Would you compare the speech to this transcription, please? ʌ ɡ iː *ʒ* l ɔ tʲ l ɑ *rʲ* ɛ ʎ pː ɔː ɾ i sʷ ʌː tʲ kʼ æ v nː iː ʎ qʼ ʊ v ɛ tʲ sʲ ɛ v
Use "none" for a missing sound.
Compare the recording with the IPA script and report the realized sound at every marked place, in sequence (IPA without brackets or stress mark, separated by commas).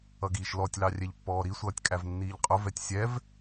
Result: ʃ, rʲ